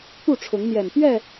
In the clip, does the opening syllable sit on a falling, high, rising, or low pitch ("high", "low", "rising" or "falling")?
falling